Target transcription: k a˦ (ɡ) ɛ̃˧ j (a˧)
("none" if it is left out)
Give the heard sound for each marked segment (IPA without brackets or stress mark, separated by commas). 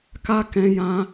k, ã˧